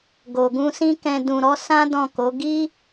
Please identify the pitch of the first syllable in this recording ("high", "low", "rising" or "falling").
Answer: low